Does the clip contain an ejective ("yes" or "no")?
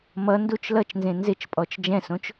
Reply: yes